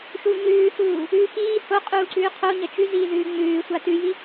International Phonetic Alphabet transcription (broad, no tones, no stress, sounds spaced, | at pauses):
ʃ u ɲ ʉː h uː | ʉ x iː h o qʼ uː ǀ ʉː qʰ o ɲ ɐ t͡ʃ ʉ z iː ð ʉː ŋ͡m ʉː sʷ a t ʉ j i